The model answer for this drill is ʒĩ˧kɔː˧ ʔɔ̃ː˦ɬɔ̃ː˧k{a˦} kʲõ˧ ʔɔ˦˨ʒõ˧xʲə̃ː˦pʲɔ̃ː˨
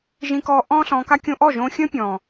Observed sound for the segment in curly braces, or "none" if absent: a˦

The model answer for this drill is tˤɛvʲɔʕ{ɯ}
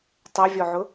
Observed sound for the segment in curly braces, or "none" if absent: ʊ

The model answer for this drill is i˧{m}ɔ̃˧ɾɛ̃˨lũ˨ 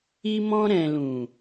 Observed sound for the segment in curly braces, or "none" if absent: m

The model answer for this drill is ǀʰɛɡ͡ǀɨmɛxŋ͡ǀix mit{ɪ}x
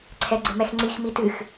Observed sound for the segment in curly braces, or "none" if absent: ɨ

